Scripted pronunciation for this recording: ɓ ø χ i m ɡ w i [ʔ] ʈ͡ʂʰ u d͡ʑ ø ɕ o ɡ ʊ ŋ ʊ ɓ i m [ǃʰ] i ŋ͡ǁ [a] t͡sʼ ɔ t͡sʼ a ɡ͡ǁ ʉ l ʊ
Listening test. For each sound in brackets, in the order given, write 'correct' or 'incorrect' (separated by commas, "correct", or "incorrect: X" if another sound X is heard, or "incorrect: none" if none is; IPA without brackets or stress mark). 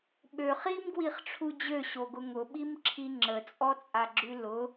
incorrect: χ, incorrect: ǁʰ, incorrect: ə